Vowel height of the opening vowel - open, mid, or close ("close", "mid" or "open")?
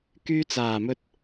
close